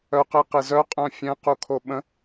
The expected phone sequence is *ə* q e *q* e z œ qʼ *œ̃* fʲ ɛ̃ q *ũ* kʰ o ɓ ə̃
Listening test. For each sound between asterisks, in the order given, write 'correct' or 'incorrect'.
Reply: incorrect, correct, correct, incorrect

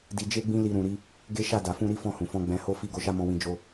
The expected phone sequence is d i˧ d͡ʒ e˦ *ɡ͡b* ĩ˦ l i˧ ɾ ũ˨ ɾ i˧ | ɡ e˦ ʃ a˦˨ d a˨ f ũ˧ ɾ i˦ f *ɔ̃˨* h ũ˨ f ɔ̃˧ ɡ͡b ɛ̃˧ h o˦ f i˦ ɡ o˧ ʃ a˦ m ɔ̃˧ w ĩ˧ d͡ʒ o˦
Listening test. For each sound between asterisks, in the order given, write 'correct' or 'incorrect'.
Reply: correct, incorrect

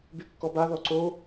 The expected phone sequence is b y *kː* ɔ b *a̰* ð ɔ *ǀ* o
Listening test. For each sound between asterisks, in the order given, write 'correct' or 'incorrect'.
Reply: correct, incorrect, correct

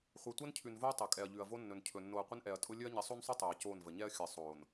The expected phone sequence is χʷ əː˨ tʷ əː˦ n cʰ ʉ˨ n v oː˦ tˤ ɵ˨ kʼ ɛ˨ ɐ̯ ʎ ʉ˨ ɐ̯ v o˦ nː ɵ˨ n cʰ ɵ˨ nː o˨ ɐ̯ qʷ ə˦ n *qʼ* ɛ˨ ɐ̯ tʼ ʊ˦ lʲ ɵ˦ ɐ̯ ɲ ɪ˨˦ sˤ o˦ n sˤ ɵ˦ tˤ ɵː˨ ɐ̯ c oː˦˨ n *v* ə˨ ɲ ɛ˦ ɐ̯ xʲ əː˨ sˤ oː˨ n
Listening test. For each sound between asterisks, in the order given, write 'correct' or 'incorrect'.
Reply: incorrect, correct

